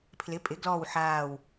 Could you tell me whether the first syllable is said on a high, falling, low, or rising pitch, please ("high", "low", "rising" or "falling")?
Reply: rising